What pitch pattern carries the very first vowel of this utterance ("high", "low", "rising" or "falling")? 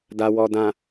low